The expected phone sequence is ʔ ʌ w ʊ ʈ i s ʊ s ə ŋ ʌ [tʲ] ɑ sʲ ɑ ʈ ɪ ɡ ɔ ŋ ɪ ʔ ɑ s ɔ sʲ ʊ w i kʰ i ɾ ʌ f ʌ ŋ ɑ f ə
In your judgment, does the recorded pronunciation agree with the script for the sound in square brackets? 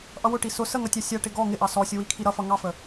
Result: yes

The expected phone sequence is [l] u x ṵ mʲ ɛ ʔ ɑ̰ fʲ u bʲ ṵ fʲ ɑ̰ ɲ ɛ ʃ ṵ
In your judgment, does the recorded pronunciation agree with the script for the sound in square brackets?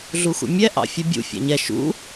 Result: no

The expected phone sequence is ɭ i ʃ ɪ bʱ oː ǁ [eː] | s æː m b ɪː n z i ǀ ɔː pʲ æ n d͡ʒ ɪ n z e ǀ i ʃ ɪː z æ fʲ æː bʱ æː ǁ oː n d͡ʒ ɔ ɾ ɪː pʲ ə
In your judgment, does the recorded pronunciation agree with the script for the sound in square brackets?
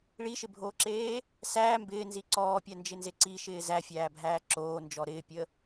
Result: yes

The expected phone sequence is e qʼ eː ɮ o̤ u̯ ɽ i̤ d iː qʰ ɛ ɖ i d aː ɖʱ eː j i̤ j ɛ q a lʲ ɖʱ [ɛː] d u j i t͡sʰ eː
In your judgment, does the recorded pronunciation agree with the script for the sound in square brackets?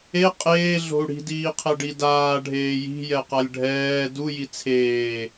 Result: yes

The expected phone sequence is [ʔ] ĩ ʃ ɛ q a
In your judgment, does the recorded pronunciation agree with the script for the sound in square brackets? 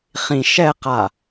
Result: no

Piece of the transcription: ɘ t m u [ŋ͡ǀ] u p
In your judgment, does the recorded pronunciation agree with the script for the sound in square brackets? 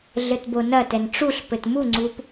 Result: yes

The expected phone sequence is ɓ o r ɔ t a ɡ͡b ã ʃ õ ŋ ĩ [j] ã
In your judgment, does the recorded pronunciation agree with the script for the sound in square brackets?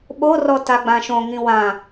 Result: no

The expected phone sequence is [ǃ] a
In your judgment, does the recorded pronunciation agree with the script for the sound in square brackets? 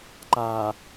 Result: yes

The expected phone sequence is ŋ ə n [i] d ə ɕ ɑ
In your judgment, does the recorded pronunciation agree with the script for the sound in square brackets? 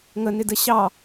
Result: no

